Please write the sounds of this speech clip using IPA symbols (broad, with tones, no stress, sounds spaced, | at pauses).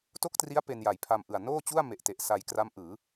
t o˥˩ k̚ t r i˦˥ a̯ p e˧ n j a˨˩ j pʰ a˧ m ʔ ɯ˨˩ a̯ n oː˥˩ t͡ɕ u˥˩ a̯ m e˨˩ ʔ t e˨˩ ʔ s a˧ j k r a˦˥ m ʔ ɯː˩˦